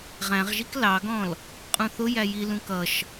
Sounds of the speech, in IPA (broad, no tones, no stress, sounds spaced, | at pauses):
ʁ æ̃ ʁ ʒ i k l ɑ ɡ ɔ̃ l | qʼ ũ θ ʊ j æ j i l ũ k ʌ ʃ